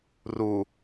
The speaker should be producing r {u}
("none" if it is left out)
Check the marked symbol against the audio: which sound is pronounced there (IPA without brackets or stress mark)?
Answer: u